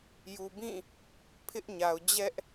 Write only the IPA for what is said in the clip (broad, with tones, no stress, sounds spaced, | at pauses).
j u˨ b ĩ˦˨ | pʰ ɪ˦ ʔ ɲ a˨ ʊ̯ d͡ʑ ɛ˦ ʔ